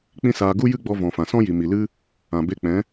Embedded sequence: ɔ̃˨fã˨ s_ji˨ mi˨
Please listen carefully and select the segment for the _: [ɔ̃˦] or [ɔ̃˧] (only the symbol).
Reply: ɔ̃˦